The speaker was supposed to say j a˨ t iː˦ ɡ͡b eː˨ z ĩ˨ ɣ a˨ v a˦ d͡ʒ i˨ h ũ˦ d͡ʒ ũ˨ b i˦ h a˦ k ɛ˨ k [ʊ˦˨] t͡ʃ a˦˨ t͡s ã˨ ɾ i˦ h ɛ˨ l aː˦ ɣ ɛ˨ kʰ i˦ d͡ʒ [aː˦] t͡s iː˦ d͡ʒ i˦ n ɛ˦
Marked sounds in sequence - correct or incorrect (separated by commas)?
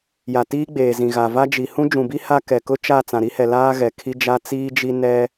incorrect, incorrect